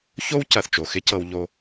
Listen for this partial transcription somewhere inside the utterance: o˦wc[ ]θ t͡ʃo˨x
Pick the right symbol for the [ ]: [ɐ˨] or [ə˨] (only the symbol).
ɐ˨